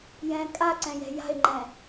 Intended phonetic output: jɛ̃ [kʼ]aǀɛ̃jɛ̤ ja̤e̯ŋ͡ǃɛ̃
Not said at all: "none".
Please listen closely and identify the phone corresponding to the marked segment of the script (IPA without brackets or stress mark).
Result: kʼ